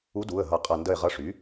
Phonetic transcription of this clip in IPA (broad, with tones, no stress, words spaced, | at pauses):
u˧˥du˩˧˩ə̯ ɦʌ˦˨qʼʌ˦˨ ndə˦˨ɪ̯ʁʌ˧˥ʂy˩˥